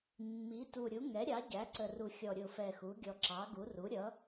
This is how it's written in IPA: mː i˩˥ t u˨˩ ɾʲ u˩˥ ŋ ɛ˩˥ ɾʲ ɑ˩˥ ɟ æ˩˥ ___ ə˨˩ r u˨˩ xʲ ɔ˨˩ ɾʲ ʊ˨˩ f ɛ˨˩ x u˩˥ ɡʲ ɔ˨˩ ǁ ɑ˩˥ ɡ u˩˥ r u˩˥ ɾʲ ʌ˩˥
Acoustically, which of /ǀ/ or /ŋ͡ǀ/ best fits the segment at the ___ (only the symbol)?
ǀ